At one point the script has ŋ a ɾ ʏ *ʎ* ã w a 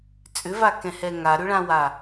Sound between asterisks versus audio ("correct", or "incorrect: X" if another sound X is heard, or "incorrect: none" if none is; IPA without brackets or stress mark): incorrect: ɭ